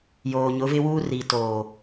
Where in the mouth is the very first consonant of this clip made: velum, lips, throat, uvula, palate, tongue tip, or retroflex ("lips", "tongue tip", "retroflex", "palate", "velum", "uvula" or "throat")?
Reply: palate